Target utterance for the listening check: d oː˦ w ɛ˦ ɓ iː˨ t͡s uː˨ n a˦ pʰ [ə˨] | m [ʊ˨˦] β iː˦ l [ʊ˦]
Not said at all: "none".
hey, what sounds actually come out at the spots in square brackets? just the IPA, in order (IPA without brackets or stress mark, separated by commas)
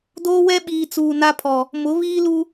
ɔ˨, ʊ˨˦, u˦